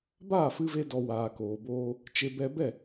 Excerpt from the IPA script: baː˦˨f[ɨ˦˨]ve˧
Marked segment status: incorrect: ɨ˧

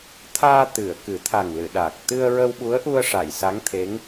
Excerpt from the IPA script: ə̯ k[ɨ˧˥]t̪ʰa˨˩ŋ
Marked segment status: incorrect: ɨ˨˩˦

